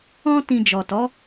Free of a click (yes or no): yes